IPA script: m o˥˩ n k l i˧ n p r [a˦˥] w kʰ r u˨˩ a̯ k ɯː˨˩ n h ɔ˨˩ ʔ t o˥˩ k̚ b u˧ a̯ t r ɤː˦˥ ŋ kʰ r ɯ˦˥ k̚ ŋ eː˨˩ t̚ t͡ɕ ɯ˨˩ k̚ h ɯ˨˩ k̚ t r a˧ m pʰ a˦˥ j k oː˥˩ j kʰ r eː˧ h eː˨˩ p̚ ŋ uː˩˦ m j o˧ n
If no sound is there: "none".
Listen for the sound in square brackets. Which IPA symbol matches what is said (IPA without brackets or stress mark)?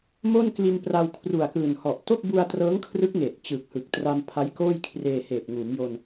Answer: a˧